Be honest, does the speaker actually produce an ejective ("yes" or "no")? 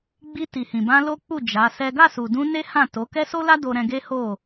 no